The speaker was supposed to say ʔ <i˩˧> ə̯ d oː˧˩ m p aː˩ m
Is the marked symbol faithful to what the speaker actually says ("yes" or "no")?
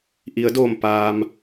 yes